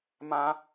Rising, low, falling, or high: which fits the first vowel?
high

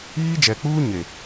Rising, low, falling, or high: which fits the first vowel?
high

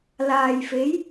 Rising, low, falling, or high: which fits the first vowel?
low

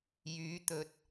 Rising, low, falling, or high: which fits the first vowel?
rising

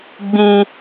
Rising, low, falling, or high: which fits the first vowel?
high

